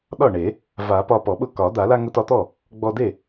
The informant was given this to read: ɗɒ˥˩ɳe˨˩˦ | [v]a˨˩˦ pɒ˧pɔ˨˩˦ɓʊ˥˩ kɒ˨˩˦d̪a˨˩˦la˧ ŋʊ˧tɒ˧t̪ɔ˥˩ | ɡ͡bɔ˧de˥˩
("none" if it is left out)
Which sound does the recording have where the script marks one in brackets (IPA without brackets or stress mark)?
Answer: v